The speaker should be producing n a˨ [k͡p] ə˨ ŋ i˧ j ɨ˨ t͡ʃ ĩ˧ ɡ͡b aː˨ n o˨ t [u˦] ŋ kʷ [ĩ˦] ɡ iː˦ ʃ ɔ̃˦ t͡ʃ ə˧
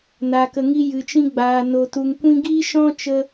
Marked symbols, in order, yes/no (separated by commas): no, no, no